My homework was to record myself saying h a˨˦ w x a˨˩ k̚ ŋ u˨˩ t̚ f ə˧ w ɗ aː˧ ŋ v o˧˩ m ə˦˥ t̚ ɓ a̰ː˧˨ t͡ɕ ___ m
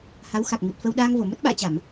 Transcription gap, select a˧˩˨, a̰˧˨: a˧˩˨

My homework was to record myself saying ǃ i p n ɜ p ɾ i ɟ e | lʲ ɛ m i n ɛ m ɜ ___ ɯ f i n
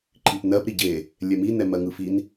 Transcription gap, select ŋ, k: ŋ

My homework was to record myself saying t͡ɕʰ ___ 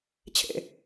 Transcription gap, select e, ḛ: ḛ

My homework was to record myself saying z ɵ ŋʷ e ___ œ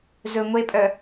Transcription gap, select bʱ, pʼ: pʼ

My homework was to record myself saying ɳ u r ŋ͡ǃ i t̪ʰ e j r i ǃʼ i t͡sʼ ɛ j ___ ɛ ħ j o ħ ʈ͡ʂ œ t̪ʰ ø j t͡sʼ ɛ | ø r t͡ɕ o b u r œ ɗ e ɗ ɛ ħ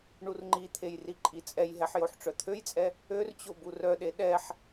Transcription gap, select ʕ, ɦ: ɦ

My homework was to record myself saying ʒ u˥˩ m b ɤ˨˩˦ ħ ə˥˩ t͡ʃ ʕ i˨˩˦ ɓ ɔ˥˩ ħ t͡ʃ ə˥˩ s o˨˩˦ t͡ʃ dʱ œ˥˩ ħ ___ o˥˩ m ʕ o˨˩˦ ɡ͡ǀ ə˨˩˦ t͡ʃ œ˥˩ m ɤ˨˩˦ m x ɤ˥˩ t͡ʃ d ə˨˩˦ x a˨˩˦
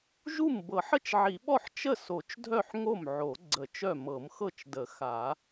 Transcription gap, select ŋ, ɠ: ŋ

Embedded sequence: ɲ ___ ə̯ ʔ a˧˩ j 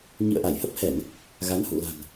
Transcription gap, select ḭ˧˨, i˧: ḭ˧˨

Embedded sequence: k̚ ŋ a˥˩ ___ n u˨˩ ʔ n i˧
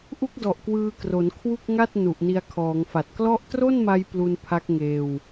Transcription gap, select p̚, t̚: t̚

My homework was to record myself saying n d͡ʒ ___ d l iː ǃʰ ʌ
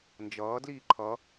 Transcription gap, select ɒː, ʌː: ʌː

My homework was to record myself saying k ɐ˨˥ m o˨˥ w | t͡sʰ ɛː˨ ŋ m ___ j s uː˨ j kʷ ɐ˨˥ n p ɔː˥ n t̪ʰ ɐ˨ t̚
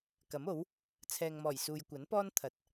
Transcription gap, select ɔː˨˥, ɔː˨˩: ɔː˨˩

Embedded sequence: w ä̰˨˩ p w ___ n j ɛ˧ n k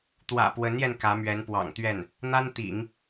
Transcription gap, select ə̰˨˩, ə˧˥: ə˧˥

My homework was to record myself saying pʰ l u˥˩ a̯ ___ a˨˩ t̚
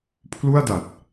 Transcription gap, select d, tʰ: d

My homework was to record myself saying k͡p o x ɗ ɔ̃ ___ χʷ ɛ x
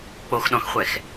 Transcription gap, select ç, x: x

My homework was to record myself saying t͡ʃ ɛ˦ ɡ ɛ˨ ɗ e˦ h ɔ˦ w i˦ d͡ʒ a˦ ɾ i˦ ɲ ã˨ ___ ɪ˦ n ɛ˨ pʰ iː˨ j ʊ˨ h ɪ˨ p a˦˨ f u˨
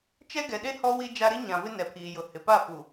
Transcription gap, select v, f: v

